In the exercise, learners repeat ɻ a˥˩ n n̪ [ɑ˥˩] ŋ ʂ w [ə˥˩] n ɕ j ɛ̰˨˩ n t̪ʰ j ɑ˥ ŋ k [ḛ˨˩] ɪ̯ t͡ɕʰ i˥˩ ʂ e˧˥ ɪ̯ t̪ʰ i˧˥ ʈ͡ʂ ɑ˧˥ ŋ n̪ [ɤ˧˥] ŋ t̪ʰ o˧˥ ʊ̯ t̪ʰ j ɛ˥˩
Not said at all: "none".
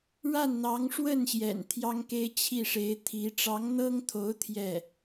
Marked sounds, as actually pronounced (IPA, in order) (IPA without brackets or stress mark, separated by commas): ɑ˧˥, ə˥˩, e˥, ɤ˥